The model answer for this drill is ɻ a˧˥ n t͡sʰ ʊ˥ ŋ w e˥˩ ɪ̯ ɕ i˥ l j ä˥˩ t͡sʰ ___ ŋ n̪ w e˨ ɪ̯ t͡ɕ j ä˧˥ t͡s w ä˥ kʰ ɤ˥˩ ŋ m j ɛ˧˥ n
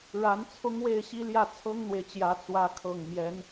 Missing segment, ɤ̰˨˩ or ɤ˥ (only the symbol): ɤ˥